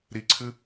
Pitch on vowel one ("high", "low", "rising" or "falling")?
high